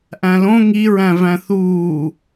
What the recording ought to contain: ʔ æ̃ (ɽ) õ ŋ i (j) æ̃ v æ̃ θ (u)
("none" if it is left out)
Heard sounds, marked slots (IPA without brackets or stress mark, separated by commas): l, ɹ, uː